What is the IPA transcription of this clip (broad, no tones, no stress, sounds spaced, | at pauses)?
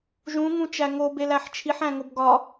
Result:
ʒ ũ ŋ ũ t͡ʃ æ ŋ o b e l æ ħ t͡ʃʰ i ħ æ̃ ŋ o b ɡ ɒ